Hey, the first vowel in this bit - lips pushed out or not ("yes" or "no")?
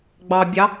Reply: no